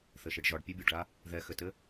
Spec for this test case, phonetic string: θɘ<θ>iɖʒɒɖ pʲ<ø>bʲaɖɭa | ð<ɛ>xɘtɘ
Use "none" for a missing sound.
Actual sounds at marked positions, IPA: ʃ, ə, ɛ

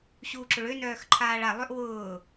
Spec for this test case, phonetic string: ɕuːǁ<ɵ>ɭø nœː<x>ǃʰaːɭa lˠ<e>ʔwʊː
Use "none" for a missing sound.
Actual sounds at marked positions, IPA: ʊ, x, ø

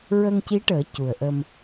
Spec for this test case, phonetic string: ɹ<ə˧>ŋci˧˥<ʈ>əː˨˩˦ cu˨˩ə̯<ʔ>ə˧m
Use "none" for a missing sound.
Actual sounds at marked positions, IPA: ə˧, ʈ, ʔ

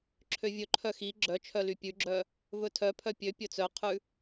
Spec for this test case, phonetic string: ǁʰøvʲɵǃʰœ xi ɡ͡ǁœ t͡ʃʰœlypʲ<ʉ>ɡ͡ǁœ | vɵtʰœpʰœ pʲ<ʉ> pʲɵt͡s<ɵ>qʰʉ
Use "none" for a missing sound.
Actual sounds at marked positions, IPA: ʉ, ø, œ

